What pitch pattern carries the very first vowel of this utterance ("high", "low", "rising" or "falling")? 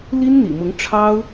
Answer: high